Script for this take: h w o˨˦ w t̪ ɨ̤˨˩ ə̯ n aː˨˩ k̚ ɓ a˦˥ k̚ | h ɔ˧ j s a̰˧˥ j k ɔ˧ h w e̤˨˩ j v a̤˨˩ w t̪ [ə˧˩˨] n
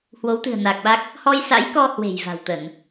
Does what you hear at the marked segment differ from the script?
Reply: no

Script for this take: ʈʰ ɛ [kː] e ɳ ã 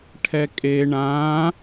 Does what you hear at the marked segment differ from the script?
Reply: yes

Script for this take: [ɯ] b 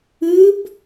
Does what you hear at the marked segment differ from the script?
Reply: no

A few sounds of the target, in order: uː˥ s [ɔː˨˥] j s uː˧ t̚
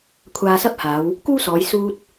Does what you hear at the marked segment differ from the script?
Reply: yes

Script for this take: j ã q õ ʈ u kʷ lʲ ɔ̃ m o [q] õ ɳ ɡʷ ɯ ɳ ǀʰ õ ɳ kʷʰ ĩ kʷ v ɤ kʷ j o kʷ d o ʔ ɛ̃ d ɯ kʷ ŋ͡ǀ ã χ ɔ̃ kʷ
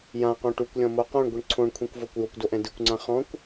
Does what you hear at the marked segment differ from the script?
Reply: no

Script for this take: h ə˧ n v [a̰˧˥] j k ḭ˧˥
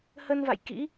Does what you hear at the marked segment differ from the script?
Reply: yes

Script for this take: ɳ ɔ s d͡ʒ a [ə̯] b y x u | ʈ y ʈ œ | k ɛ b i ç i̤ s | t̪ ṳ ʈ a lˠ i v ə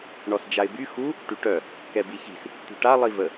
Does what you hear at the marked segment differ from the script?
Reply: yes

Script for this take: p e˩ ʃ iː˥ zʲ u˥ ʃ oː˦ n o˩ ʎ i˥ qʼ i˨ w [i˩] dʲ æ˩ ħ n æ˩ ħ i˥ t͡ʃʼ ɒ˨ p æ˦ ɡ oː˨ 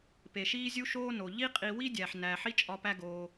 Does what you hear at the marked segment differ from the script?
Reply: yes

